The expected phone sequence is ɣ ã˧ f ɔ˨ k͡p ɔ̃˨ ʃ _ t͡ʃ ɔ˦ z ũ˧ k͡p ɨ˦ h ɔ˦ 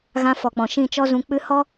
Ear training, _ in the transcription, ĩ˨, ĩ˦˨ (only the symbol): ĩ˦˨